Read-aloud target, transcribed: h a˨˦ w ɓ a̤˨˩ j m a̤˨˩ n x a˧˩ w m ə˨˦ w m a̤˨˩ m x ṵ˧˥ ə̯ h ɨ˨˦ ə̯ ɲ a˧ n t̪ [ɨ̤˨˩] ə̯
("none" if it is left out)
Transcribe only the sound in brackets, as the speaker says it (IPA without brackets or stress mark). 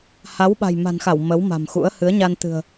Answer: ɨ̤˨˩